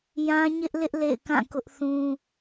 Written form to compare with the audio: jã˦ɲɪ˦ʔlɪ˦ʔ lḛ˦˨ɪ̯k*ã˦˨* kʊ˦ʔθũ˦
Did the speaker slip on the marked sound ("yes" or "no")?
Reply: no